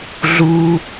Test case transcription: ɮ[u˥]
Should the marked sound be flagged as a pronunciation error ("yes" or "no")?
no